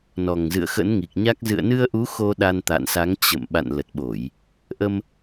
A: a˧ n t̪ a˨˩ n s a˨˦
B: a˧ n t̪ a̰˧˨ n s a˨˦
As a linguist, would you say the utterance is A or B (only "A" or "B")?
B